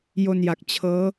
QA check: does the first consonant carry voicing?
yes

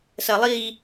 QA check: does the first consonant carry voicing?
no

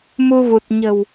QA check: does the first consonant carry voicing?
yes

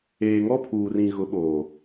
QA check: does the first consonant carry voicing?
yes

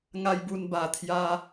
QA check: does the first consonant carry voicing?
yes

